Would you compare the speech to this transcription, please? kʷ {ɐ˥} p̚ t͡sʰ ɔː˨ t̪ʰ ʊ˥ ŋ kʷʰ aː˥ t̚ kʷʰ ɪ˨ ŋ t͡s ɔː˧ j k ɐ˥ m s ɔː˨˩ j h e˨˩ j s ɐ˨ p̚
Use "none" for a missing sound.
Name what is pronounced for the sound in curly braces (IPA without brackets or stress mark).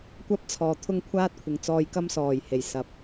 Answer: ɐ˥